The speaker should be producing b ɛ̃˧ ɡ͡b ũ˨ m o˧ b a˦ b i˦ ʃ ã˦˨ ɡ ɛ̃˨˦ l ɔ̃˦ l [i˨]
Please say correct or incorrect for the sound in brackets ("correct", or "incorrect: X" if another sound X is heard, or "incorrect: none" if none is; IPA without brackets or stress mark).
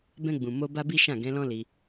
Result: incorrect: i˧